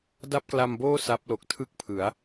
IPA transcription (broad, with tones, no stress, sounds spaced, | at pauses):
d a˥˩ p̚ k l a˧ m b oː˥˩ s a˦˥ p̚ l o˨˩ k̚ tʰ ɯ˥˩ k̚ pʰ ɯ˩˦ a̯